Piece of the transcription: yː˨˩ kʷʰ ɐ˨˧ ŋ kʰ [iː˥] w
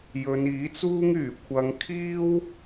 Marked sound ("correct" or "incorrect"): correct